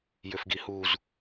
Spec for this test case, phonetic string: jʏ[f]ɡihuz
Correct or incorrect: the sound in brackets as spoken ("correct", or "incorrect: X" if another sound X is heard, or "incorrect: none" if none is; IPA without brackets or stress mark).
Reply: correct